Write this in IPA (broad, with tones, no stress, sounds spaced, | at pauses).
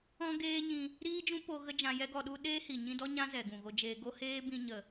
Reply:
ɔ̃˦ ɡ eː˦ ɲ ĩ˧ | ɾ iː˦ d͡ʒ ũ˦ p o˧ ɣ ə˦ d͡ʒ ã˧ j ɛ˦ ɡ ɔ˧ ɗ u˦ ɗ eː˦ h i˨ ɲ ĩ˧ d ɔ˦ ɲ ã˦ z ɛ˨ ɡ ũ˨ ɣ o˧ d͡ʒ eː˧ ɡ o˦ h eː˦ b ĩ˧ ɲ ə˨